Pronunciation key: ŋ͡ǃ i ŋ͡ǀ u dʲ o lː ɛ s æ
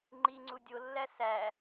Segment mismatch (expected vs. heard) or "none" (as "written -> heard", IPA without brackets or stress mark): ɛ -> æ